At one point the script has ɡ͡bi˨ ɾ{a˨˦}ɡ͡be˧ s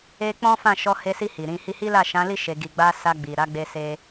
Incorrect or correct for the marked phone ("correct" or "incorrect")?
correct